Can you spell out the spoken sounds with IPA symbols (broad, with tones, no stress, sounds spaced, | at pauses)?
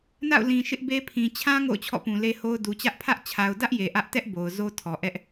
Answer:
n a̰˦˨ ʊ̯ l ĩ˨ ʃ ɪ˦ ʔ b e˦ pʰ ĩ˨ t͡ɕʰ ã˦ ŋ o̰˦˨ ʊ̯ t͡ɕʰ ɔ̰˦˨ p ũ˨ l e˦ h o˦ ʊ̯ d u˨ t͡ɕ ä˦ ʔ pʰ ä˦ ʔ t͡ɕʰ a˨ ʊ̯ d ä˦ ʔ j e˨ ʔ ä˦ ʔ t ɛ˦ ʔ b o˨ ʊ̯ z o˦ tʰ ɔ˨ ʔ ɛ˦ ʔ